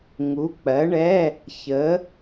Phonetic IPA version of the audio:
ŋu˨˥k͡pɜ˨˥ ɳɛ˧˥˧ | çə˨˥

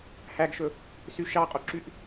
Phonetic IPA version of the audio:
hæɡʃɵ | syʃɑqʼoǁyʔ

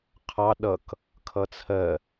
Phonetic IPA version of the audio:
qʰɑ ɗʌk | kʰʌt͡sʰɜ

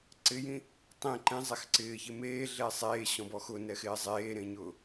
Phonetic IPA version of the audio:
ǀɪjĩ | tˤĩ ǃẽzˤex ǀɪːçɪ meːɮe sˤeːɕɔ̃bɔ xʊnɛxɪː zˤeːɾẽɲʊː

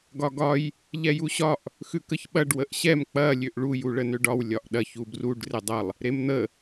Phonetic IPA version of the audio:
ɡɒɡɒj | ʎɛjuɕɒʔ | xʉkəçɓɐɖ wəʔɕɛm k͡pɐ lʲøʔɭu juɭənøɖɒw lʲɒʔɗɐç ubruɖ redˤɐlˠ | ɾemn̪ə

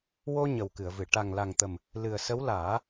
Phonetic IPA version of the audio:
wo˧ ɲə˨˩wkɨ˨˩˨ə̯vɨ˨˩˨ ʈa˨˩ŋ la˨˩ŋt̪ə˨˩m | lɨ˨˩ə̯sə˧˥w laː˨˩˦

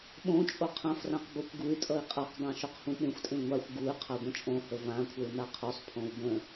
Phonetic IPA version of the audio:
ɓõ t͡ʃʼoqʰãfrãq bokʷɡuy̯tʼʌi̯ qʼaqdˤã ʃoqhũɓẽxʷtʼẽ ŋʷaxʷ ɡuy̯ qʰaɡʷə̃t͡ʃʼõhə vãkʷʰəu̯ naqʰusˤpʰõu̯ bə̃

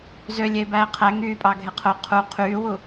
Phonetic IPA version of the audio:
zølʲeːbæː qʰæ ŋyːpʼɑɡʱe qʰo qʰu qʰyːwu

